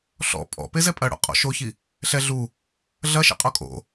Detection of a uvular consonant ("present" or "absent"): present